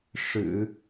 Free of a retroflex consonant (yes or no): no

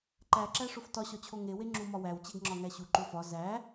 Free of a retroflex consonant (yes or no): no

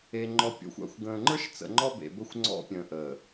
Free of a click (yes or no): no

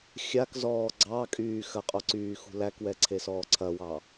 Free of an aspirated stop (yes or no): no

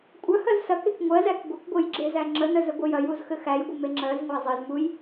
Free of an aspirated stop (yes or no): yes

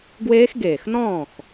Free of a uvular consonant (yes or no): yes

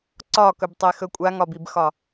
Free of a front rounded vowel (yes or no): yes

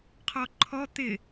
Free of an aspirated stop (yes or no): no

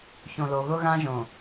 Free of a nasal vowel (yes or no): no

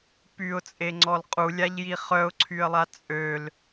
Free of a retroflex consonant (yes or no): yes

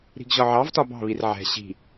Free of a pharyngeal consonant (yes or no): no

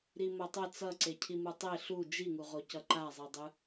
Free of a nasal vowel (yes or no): yes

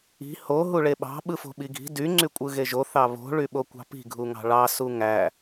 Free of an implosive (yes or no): no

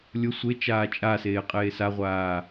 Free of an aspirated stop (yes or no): yes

